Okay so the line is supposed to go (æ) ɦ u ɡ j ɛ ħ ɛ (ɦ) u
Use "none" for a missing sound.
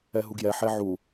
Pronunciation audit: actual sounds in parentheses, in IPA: ɛ, ʕ

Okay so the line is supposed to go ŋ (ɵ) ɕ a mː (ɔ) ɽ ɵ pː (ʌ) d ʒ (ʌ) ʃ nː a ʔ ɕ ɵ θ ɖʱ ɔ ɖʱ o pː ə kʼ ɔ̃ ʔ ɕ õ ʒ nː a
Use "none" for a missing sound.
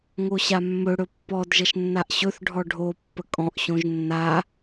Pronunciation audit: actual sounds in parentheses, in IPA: o, ɵ, ɔ, ʌ

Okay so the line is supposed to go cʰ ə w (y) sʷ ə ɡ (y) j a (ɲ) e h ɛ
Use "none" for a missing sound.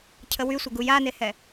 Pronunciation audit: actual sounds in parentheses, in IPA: y, u, n

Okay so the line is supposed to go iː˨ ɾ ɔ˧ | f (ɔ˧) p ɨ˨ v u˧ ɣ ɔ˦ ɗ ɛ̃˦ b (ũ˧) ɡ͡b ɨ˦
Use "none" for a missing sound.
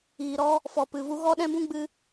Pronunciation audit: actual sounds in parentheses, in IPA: ɔ˨, ũ˦

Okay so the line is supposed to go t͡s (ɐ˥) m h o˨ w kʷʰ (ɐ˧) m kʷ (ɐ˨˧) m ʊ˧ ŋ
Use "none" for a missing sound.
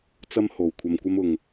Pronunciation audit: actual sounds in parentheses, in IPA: ɐ˥, ɐ˧, ɐ˥

